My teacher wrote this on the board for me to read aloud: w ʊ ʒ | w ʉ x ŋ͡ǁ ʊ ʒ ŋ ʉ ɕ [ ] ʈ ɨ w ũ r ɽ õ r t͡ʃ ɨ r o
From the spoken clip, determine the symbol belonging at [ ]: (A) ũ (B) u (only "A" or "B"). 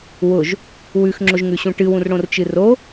A